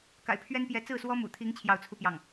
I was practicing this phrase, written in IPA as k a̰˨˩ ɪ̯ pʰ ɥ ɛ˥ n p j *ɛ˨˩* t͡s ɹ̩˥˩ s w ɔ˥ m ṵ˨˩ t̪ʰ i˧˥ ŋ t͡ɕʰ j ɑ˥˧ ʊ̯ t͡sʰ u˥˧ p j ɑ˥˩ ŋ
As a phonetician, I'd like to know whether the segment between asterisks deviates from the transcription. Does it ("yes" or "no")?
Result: yes